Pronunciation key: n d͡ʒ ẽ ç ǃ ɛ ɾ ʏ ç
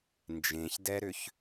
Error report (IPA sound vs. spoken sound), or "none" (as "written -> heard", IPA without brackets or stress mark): ǃ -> d